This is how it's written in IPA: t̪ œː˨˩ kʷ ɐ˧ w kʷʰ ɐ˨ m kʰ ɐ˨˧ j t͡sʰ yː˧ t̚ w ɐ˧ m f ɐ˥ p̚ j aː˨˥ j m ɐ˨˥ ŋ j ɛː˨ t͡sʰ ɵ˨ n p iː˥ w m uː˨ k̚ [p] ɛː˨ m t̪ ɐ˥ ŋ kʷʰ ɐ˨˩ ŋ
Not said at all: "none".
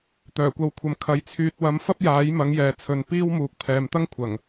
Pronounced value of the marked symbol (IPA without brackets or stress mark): pʰ